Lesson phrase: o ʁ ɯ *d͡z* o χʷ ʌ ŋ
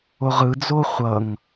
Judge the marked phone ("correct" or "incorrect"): correct